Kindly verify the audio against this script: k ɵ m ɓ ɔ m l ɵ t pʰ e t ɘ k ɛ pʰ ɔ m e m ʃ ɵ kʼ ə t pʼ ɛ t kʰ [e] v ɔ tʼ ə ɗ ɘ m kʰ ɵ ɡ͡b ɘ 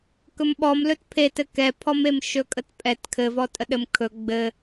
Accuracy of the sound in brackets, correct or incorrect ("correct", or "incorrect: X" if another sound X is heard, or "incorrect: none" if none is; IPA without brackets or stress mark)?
incorrect: ɘ